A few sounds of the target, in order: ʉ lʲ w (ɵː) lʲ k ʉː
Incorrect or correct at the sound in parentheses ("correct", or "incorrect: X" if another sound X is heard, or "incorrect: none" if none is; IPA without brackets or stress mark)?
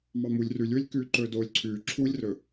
incorrect: ɵ